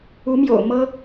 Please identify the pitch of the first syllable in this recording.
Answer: rising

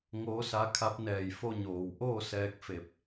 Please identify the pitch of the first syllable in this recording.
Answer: rising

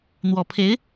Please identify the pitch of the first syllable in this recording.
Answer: low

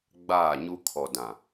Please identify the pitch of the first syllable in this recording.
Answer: falling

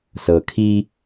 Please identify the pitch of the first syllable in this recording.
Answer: low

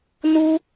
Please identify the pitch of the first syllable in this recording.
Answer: high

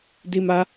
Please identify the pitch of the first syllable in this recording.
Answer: high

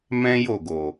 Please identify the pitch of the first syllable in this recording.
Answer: high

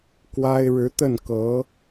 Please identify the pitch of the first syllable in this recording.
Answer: high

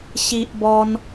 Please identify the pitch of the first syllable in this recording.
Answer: high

